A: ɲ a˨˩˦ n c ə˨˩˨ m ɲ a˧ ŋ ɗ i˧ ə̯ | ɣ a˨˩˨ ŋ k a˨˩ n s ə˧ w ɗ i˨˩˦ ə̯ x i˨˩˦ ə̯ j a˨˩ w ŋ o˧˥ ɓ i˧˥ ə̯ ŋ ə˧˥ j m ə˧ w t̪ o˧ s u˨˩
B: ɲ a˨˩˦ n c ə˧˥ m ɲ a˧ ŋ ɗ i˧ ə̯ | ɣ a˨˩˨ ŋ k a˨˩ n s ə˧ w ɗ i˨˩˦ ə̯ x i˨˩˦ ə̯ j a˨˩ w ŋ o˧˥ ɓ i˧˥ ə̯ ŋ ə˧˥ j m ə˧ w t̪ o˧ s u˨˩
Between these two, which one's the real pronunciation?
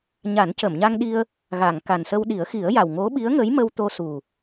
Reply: A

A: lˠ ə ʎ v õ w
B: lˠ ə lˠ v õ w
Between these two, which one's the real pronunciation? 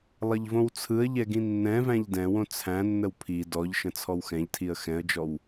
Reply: A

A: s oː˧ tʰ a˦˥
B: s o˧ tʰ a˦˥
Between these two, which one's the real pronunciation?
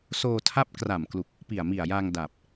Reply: A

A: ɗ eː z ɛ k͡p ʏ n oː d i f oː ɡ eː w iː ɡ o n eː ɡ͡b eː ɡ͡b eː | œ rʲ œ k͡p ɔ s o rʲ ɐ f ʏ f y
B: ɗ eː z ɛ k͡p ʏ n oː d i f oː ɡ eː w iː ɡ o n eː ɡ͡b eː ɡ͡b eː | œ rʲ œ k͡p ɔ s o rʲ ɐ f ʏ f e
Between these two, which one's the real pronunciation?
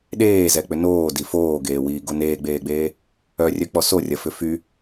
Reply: A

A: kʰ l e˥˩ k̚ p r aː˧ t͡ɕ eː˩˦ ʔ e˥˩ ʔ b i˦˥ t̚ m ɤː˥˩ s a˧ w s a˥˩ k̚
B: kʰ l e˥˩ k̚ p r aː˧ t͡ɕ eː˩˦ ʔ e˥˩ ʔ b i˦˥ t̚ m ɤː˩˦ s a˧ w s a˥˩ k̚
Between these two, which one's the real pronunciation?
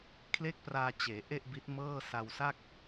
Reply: A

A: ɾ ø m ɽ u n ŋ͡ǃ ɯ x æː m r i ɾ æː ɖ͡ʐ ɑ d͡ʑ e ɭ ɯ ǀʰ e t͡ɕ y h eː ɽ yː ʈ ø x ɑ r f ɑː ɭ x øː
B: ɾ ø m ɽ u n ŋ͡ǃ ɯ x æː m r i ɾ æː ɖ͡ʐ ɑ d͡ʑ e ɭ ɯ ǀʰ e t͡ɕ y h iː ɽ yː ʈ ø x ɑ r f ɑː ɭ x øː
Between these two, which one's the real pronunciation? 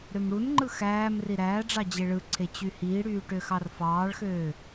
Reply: B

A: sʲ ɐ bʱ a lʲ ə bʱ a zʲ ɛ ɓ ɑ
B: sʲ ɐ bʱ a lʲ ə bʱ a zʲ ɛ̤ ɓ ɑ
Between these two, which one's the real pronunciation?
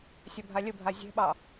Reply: B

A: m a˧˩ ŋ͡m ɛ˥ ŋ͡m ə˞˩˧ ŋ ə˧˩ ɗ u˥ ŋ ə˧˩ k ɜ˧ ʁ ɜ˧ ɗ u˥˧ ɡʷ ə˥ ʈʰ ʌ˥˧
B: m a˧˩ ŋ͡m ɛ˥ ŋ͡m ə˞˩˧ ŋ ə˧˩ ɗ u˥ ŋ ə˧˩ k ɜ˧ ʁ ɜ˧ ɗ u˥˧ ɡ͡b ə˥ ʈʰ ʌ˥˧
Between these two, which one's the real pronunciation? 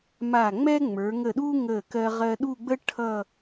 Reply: B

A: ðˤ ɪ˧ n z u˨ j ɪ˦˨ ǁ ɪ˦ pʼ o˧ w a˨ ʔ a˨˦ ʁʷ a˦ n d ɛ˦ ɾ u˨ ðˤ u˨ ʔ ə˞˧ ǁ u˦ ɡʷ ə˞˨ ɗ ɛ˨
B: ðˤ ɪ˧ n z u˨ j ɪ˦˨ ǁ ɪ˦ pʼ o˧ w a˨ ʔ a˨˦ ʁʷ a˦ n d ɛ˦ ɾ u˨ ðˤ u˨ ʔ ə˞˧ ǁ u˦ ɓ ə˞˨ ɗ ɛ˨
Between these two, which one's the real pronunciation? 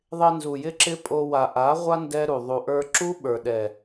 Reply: B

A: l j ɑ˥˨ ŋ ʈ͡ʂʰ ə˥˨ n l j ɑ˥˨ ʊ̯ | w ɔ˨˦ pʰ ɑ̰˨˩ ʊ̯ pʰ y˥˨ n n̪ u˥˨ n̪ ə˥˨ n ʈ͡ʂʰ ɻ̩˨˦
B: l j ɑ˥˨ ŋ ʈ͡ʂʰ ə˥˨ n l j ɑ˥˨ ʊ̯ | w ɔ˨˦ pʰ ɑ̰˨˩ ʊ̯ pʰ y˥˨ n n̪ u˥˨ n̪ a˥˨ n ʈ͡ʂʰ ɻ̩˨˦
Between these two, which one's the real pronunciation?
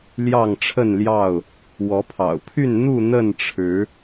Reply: A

